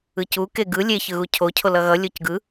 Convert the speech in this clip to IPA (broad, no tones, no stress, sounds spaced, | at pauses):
ɯ c u k e ɡ ɯ lʲ e ç ɯ ɣ u cʰ o cʰ o l ʌ ɣ ʌ lʲ o c ɡ ɯ